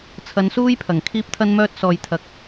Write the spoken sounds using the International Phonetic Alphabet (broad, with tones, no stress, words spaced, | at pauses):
t͡sʰɐ˨˧nsuː˥jpʰɐ˨˩ŋ kʰiː˥p̚t̪ʰɐ˥nmœː˥t̚ sɔː˨jt̪ʰɐ˨k̚